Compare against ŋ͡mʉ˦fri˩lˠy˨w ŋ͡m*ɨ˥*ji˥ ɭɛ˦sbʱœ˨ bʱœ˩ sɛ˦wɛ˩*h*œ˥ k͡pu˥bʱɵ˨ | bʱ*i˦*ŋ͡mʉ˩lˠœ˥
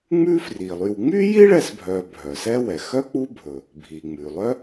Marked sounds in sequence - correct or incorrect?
incorrect, incorrect, incorrect

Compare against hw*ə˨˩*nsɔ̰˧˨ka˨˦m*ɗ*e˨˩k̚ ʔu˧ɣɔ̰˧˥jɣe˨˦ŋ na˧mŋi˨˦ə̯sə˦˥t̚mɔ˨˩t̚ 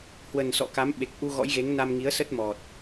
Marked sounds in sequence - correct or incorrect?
correct, incorrect

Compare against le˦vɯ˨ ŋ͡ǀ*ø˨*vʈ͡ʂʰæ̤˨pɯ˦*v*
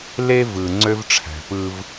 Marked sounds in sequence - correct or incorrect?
incorrect, correct

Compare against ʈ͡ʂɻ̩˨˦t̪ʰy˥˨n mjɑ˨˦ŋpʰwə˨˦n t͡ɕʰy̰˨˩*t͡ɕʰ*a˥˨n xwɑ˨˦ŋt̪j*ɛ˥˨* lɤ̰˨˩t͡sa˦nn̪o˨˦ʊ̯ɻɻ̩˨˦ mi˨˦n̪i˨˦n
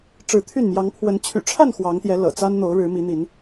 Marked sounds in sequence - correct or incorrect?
incorrect, incorrect

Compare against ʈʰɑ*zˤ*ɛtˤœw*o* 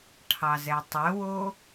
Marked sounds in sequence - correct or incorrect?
incorrect, correct

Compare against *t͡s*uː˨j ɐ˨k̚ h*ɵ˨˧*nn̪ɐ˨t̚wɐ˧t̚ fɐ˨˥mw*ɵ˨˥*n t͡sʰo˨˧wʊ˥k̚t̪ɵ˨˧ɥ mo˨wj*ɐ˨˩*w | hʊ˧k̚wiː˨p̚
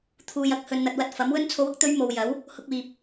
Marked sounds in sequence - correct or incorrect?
incorrect, incorrect, incorrect, incorrect

